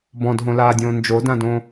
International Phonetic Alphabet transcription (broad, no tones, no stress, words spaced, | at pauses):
bɔ̃dɦõlaːdʲõː nd͡ʒodãdõ